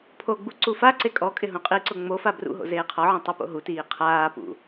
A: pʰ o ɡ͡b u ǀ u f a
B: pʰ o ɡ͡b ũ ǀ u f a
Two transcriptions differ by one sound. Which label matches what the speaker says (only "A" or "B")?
A